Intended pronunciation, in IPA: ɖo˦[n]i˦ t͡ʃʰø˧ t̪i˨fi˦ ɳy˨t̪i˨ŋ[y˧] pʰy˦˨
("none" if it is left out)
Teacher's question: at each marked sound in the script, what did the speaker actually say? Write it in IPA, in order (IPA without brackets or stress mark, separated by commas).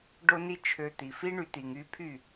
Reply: n, y˧